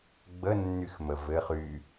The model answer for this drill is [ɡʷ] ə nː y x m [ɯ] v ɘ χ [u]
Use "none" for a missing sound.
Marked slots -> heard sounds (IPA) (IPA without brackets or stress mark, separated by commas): ɡ͡b, ə, y